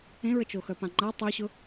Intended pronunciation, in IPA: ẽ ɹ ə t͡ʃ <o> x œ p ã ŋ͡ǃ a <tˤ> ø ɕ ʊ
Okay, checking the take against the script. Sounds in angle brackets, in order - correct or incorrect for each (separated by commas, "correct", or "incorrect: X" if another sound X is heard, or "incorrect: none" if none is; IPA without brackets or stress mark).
correct, correct